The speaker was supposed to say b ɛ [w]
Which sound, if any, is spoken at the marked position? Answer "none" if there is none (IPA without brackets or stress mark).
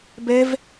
v